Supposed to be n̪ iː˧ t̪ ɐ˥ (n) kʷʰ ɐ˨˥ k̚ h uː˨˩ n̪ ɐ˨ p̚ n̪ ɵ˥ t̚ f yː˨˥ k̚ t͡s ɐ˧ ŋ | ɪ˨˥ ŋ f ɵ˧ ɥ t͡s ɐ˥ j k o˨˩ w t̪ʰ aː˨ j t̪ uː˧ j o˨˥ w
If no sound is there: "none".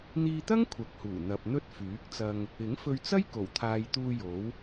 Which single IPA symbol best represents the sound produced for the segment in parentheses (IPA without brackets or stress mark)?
ŋ